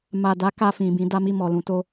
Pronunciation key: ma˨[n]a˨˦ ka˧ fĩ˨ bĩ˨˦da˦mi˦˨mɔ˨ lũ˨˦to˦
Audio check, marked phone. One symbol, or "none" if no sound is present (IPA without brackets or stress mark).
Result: d